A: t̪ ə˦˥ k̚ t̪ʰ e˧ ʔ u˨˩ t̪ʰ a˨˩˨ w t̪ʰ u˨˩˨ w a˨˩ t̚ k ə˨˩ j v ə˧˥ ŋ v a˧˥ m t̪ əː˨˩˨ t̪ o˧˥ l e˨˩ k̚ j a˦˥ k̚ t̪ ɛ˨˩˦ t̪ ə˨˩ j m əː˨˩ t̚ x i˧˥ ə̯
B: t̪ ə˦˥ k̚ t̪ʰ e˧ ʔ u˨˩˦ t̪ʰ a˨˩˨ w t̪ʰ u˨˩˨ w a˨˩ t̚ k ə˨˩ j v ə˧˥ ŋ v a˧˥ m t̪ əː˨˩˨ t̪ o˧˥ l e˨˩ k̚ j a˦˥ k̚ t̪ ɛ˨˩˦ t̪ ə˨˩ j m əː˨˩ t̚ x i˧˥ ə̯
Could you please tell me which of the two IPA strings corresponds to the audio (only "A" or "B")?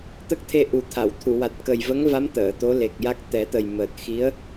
A